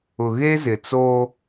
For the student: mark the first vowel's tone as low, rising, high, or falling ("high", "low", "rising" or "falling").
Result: low